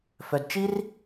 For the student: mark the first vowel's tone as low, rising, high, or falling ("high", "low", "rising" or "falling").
low